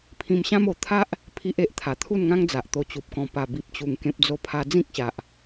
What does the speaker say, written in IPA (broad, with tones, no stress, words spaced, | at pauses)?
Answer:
pʰĩ˧mɕã˦m o˧ t̪ʰa˦ʔ | pʰi˦ʔe˨ʔ t̪ʰa˨˩t̪ʰu˥˧nŋã˦ŋd͡za˨ʔ t̪o˧t͡ɕu˨p̚kɔ̃˧ pa˨˩bi˨p̚t͡ɕu˨˩ŋ kẽ˦p̚d͡zo˥˧pʰa˦ d͡zĩ˦k̚ɕa˨ʔ